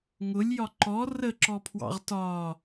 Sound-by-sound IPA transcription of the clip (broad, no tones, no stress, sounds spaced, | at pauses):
ŋ ʊ lʲ j ɒ ǃ ɔ r ə ǁ ɔ pʰ w ɑ̰ ʁ t ɒ